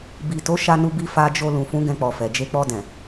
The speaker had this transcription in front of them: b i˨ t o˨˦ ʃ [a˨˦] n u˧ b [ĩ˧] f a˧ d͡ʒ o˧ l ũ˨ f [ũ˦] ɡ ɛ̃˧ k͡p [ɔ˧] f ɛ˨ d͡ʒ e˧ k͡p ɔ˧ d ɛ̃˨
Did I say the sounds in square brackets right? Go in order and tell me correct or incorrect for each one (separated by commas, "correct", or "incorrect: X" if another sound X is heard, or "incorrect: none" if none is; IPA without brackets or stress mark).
incorrect: a˧, incorrect: i˧, incorrect: ũ˨˦, incorrect: ɔ˨